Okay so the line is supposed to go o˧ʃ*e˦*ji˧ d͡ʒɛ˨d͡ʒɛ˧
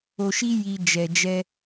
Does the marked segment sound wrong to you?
yes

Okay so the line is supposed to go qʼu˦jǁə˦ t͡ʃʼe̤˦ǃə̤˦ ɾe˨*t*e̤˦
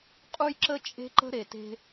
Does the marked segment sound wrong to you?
no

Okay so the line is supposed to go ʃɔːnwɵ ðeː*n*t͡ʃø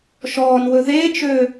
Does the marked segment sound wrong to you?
yes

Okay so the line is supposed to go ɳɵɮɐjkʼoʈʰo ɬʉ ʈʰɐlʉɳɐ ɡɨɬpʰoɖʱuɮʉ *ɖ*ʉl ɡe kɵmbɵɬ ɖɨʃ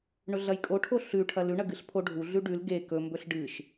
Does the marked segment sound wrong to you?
no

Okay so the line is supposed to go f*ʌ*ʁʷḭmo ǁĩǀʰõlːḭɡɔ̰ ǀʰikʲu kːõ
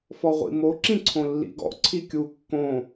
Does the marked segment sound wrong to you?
yes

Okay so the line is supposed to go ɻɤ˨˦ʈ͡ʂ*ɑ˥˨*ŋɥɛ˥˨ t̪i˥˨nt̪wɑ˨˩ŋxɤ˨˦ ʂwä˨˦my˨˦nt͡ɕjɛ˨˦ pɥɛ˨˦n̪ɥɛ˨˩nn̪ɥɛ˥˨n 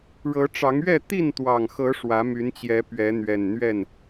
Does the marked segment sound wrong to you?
yes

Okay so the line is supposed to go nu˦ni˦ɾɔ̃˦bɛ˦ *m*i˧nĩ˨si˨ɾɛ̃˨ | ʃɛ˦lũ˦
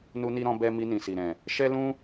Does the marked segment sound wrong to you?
no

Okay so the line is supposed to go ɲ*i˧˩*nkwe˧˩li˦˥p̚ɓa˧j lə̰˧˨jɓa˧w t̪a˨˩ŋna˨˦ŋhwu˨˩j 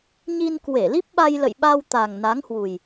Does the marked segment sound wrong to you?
yes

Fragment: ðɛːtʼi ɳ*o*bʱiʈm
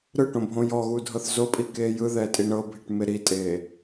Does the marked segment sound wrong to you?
yes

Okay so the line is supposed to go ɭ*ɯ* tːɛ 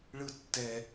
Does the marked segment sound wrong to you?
no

